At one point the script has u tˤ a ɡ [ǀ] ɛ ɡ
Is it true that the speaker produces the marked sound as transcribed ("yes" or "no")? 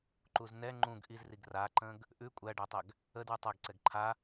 yes